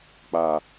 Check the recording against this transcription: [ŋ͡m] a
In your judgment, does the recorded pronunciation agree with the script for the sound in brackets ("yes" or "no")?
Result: no